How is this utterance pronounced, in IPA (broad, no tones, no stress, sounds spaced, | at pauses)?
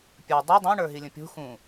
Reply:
pʲ ə˞ dˤ u dˤ ũ ɳ ə˞ ɦ i lʲ ə̃ pʲ ṳ x ũ